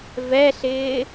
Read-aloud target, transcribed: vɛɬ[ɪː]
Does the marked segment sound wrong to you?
no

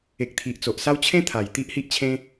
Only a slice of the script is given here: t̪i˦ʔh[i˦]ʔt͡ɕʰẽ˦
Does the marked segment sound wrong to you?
no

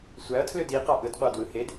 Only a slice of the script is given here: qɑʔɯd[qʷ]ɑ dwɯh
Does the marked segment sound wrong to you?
no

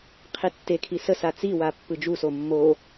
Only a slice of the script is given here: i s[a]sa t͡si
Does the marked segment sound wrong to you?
yes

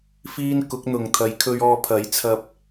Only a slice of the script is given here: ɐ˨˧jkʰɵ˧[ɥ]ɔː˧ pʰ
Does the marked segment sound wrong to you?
no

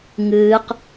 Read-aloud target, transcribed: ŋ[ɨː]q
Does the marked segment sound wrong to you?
no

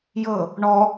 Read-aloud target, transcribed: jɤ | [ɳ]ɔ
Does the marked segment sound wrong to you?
no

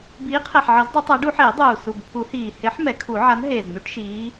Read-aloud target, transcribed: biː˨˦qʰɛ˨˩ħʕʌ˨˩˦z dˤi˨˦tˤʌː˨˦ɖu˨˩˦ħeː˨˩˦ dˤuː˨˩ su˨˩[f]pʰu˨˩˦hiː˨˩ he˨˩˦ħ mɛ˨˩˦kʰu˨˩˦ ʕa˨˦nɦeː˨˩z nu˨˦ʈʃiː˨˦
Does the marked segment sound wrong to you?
yes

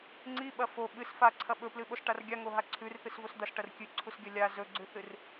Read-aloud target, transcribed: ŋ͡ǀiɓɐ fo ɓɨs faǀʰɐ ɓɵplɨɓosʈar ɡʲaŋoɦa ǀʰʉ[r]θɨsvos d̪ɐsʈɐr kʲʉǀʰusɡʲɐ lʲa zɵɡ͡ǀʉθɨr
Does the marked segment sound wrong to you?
no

